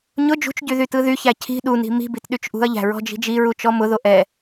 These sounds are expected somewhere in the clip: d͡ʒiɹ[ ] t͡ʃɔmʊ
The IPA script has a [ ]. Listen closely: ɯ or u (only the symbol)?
u